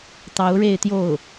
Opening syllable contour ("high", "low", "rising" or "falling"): rising